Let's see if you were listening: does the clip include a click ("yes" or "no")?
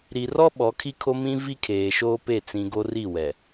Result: no